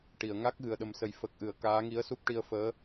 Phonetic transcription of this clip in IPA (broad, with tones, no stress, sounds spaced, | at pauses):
ʈ i˨˩˨ ə̯ ŋ a˦˥ k̚ ɣ ɨ˨˩ ə̯ ɗ ə˨˩˦ m s ə˨˩ j f ə˨˩ k̚ ʔ ɨ˨˩˨ ə̯ k aː˧˥ ŋ i˧˥ ə̯ s u˦˥ p̚ ʈ i˧ ə̯ f əː˧˥